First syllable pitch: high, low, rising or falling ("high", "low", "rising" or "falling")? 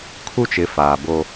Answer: high